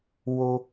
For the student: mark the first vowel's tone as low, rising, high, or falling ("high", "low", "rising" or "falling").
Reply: high